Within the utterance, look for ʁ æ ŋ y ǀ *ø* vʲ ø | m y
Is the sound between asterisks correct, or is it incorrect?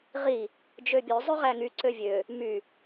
correct